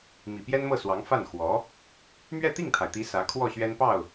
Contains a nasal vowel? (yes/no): no